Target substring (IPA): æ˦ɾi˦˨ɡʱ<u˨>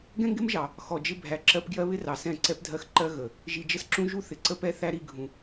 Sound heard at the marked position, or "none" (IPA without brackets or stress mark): ũ˨